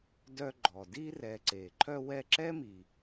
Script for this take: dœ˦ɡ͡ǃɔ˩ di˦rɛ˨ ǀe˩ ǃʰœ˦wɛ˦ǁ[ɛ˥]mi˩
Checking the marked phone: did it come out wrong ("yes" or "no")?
no